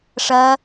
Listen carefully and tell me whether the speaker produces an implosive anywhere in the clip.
no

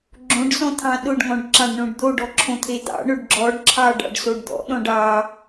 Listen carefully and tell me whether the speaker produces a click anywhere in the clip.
yes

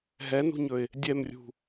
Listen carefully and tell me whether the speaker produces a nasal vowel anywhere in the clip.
no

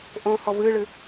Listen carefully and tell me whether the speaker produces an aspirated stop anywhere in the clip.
no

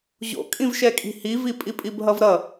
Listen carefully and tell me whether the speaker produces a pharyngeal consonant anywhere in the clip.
no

